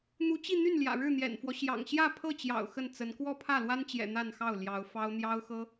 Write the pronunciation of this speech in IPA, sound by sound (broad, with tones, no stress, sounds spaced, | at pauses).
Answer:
n̪ u˧˥ t͡ɕ i˥˧ n̪ y˥˩ n l j ä̰˨˩ ɻ ɻ̩˥˩ n̪ j ɛ̰˨˩ n f w ɔ˦ ɕ j ɑ̰˨˩ ŋ ɕ j ä˥˧ pʰ ɤ˥˩ t͡ɕ j ɑ̰˨˩ ʊ̯ x ə˥˩ n t͡s ə˧˥ n k w ɔ˥˧ pʰ ä˥˩ l w a˥ n t͡ɕ j ɛ̰˨˩ n̪ a˥˧ n x ɑ˥˩ ʊ̯ l j ɑ˧˥ ʊ̯ f ɑ˥ ʊ̯ n̪ j ɑ˥ ʊ̯ x ɤ˥